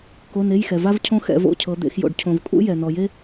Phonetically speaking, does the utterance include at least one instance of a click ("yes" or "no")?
no